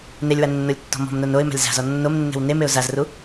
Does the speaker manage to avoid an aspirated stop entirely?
yes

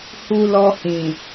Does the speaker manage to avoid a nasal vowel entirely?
no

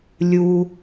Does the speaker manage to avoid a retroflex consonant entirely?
yes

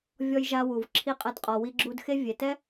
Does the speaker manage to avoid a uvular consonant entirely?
no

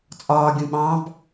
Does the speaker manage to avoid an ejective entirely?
no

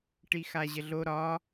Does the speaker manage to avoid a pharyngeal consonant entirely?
yes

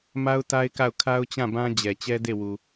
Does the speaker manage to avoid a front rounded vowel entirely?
yes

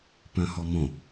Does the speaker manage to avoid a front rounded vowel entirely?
no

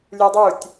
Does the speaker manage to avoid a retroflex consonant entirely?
yes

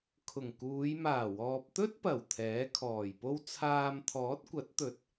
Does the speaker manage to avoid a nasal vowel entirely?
yes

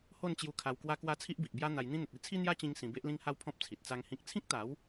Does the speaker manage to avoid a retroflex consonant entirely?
yes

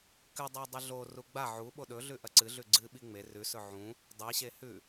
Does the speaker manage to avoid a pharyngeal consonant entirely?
no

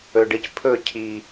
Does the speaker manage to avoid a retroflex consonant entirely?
no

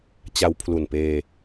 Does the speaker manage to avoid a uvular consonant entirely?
yes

